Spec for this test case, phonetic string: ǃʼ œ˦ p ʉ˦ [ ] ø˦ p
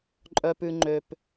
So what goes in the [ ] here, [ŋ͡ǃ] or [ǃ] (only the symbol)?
ŋ͡ǃ